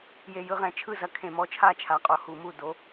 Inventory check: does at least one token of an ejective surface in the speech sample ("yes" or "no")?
yes